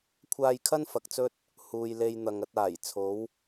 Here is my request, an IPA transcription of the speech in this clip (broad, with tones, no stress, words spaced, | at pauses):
kʷʰaː˧jkʰɐ˥n fɐ˨k̚t͡sɵ˥t̚ | huː˨jle˧jn̪ɐ˨ŋ ɐ˧t̚aː˨˩j t͡sʰo˨˥w